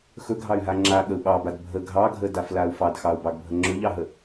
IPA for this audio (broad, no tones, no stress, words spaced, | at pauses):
xɵɡʱɑy̯ɦa ŋ͡ǁaɠəu̯ ɓɑbad bʱə ɡʱɑɡʱədaflau̯ fɑdxɑu̯bɑɡbʱə ŋ͡ǁɵʎɑɦə